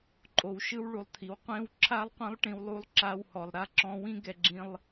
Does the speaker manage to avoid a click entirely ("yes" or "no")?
no